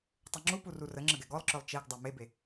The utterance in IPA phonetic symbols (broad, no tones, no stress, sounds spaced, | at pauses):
tˤ u ŋ͡ǁ u p u r u r ə ŋ͡ǁ ə ɡ ɛ ɡ ɔ lˠ ǁ œ lˠ t͡ʃ e ɡ dˤ a m e b e